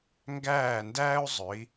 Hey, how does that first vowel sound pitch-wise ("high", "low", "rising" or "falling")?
falling